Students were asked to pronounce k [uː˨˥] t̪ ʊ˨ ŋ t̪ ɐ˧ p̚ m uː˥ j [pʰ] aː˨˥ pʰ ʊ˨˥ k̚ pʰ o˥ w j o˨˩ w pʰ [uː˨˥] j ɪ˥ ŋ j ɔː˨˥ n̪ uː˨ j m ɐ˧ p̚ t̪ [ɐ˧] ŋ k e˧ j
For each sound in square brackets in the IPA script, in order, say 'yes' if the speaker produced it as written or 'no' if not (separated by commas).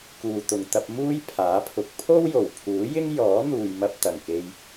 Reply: no, yes, yes, no